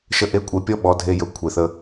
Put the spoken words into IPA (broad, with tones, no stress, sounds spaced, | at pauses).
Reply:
ʃ ə˦˨ ʔ e˦ kʷʼ e˧ pʲ ɔ˦ ɓ ɔ˨˦ dʱ e˧ j ɵ˨˦ kʷʰ e˨ θ ə˧